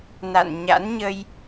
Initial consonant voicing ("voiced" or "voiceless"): voiced